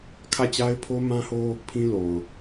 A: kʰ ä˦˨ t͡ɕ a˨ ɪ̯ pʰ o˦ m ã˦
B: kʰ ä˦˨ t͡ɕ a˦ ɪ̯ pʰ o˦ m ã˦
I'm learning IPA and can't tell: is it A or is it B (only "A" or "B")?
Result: B